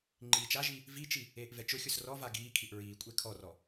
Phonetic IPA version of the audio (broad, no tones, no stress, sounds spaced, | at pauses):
ŋ͡ǃ iː t͡ʃ a ʒ i | v i t͡ʃ i | eː ʔ v ɛ t͡ʃ ʊ xʲ ʊ s r ɔ v a ɡ iː kʰ i ʔ ɹ iː kʷʼ e kʰ ɔ r ɔ